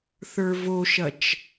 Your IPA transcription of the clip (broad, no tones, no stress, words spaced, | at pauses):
θə˞voʃɐt͡ʃ